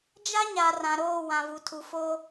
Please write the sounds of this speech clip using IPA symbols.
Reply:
d͡ʒ a˦ ɲ a˨ r ã˨ ɾ oː˦˨ w ã˨ v u˨ tʰ u˨ f o˦

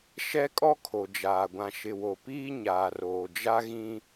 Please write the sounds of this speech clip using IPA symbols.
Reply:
ʃ ɛ˦ kʼ ɔ˦ kʰ o˨ d͡ʒ aː˨ ɡʷ ã˨ ʃ ɪ˨ w o˨ p iː˦ ɲ aː˨ r oː˨ d͡ʒ a˦ ɣ ĩ˦

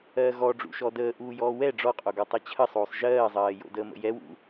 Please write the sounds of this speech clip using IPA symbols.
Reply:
ɜː ɣ ɔ ɖ͡ʐ ṵ ʃ ɔ d əː ʔ uː j ɔː w ɛ ɖ͡ʐ ɔ qʼ o ɡ ɔ tˤ ɛ t͡ɕʰ ə sˤ oː sˤ ʒ ɜː zˤ ɜː j o̰ d əː m ə̰ j ɛ w ṵ

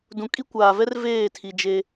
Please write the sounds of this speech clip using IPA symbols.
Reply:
d ũ˨ kʼ i˦ kʷ aː˨ v ɛ˦ r v eː˦˨ tʰ i˨ d͡ʒ e˦

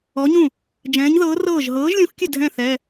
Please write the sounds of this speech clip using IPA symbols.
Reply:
ɔ˨˥ ɲ ũ˥˩ | d͡ʒ ɛ̃ː˨˥ ɲ ð ɤː˨˥ r ɤː˥˩ ʒ ɦ ɤː˨˥ ʒ lʲ ũ˨˥ x kʲ ɘ˥˩ dʱ ɛ̃˥˩ θ ɛ˩˧˩

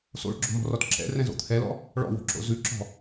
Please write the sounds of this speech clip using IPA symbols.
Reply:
s o̰ ɭ ɡ͡ǁ o̤ m ɔ̤ r ɔ t ǁ ɛ̰ r ɛ̃ z o̰ t̪ʰ ɛ l ɔ̰ | ɭ ɔ̰ w o̤ ǁ o̰ z ʉ ǁ ɔ̤

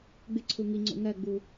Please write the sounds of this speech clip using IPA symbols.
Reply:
ɡ͡b ɪ ǀʰ u ŋ i ŋ͡ǀ o̰ ŋ ɜ ɡ͡b u

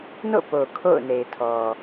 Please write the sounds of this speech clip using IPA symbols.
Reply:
n o̰˦˨ p o˨ kʰ o̰˦˨ ʊ̯ n e˨ ɪ̯ tʰ ɔ˨

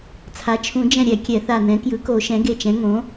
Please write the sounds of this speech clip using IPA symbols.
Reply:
t͡sʰ a˩˥ t͡ʃʰ ũ˨˩˦ d͡ʒ ɛ̃˧˩ ɾʲ ɛ˨˩˦ kʲ ɛ˨˩˦ θ a˧˩ n ɛ̃˩˥ k j ɯ˩˥ k o˨˩˦ ʃ ɛ̃˩˥ ɡ e˧˩ t͡ʃ ɛ̃˩˥ ŋ õ˩˥

